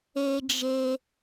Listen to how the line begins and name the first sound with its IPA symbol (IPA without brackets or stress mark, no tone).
e